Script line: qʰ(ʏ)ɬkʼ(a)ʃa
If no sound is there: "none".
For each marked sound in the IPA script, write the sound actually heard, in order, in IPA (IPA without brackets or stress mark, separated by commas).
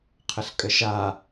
ə, ə